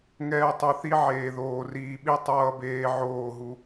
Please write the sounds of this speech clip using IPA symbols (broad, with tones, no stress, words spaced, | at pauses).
ŋɛː˨tˤo˨ θi˦ʕeː˨ðoː˨ riː˨ɓi˦ tˤʌː˦beː˦ ʕoː˦˨ɦu˦